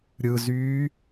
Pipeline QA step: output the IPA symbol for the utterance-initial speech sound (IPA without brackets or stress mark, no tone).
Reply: ɾʲ